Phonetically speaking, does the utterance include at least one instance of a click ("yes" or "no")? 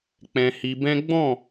no